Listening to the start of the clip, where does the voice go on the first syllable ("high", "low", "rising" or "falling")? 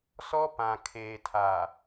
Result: high